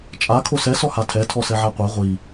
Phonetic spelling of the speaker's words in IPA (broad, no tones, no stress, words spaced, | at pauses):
t͡ʃʼa kʰosɛ sɔhatʰɛ tʰɔsɛʕaqʷa ʁʷi